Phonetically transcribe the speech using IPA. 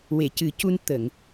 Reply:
we˨˩˨cɨ˨˩˦cu˧n t̪ə˨˩˨ŋ

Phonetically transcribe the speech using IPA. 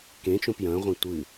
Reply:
kẽt͡ʃõp jɐ̃ʁʷɛ̃ tʷɨ

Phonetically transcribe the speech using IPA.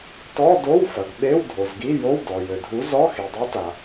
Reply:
tɔ˧˥˧do˧˥˧wfɐ˩ɡ ɓe˧˥˧wdʱo˩zɡi˧˥˧ jo˧˥˧wdɔ˩jɘ˩dʱu˨˥ zɔ˧˥˧xi˩dˤi˨˥ta˩

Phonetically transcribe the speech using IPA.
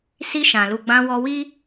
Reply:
si˧ʃã˨lu˨ ɡ͡bã˧wɔ˧wi˦

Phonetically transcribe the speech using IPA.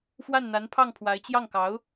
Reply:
fwa˥˩nn̪a˧˥npʰɑ˥˩ŋ pʰwa˧˥ɪ̯t͡ɕjɑ˥˩ŋkɑ˧˥ʊ̯

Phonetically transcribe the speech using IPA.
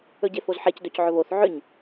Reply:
ɵɟefozħec dɵcʕɵβoθ ʕʏɲ

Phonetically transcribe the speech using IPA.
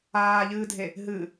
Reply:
aːʎɨːdʱe | ɦɨ

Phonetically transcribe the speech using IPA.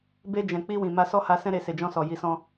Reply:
be˧d͡ʒɛ̃˨ k͡pi˧wĩ˨ ma˧sɔ˦ha˧sɛ̃˦ ɾe˧ se˨d͡ʒɔ̃˧sɔ˨ ji˨sɔ̃˧

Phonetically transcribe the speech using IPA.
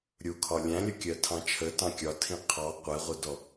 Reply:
ɾʲukʰɒ lʲæ̃lʲʌkʲɜtʰɑ̃ t͡ʃʰətɑ̃ kʲɒtʰĩ qʰɑ qʷɛʁʷɜdɔ

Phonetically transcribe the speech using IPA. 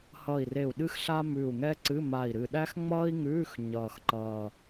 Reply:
hʌ˧˩i̯re˧˩u̯ ɗɨ˥xɬa˥ mʉ˧˩u̯ ŋɛ˥ǀɨ˧˥˧ ma˧˩i̯ɾɨ˧˩ ɗæ˥xŋ͡mʌː˥i̯ŋʉː˧˥˧x ɲʌː˧˩xǃʌː˧˩

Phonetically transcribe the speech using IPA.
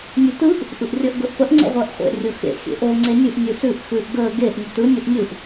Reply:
nʲʉtɯʔ | ʔɯʔrʲəːʔɡɵʔpəʔ ŋ͡ǀə̰ʁʷəːʔχʷḛ rʲʊxḛ sʲḛʔo ŋ͡ǀenʲʉʔ nʲʉsʉʔ xʉʔ ɡəː ɡeʔ nʲʊtɯ nʲʊʔnʲɯʔ

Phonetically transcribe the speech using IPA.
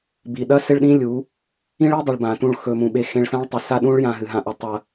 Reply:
bi˨ɗɐ˦ se˦ɭɗĩ˦lʲu˨˦ | ĩ˦ɭi˦dˤɐ˨ɭ bã˨tũ˦˨ɭxɵ˧mũ˧ ɓe˧ xẽ˧ɭsã˦ɭ tˤɐ˧sa˦ɗũ˦ɭ jã˧ɦɨ˨ɦã˧ʔɵ˧ tˤɐ˧

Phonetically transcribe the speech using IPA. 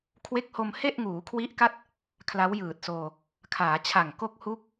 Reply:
kʰwe˦˥k̚ho˧mhe˥˩ʔ ŋuː˩˦kʰwi˦˥ʔ ka˥˩t̚ | kʰla˦˥wjɯː˨˩t̚soː˧ | kʰaː˩˦t͡ɕʰa˨˩ŋ ko˥˩k̚ hu˦˥k̚

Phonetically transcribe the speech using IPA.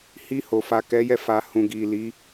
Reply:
hi˧ho˨ fa˨kɛ˨˦jɛ˧fa˨ hũ˨ɡi˨ li˨˦

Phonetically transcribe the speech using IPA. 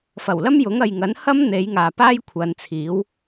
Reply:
fɐ˨˩wlɐ˥mjʊ˨˥ŋ ɐ˨jŋɐ˨˥nhɐ˥m n̪e˨˥jŋaː˨ paː˥j kʷʰɐ˨˧nt͡sʰiː˨˥w

